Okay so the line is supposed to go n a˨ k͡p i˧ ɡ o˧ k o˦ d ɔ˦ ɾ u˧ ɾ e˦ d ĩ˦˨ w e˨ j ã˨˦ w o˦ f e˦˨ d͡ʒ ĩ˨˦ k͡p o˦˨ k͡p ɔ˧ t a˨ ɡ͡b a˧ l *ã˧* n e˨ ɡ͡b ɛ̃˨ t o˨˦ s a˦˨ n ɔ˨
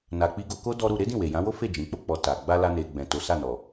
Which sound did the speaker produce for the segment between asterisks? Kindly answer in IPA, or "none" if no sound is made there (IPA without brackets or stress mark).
a˧